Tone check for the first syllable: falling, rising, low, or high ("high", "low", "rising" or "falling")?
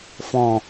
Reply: low